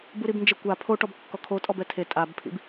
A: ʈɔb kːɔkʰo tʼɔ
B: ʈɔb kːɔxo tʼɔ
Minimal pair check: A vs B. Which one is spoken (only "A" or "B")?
A